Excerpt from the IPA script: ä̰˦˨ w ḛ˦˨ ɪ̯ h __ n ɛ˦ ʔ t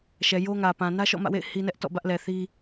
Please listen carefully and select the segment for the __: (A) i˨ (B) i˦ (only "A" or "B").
B